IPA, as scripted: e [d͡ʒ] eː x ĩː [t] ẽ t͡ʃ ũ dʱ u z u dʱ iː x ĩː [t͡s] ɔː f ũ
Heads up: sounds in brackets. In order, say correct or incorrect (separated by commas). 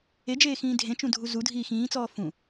correct, incorrect, correct